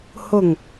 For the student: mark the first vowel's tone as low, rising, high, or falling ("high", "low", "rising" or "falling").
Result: low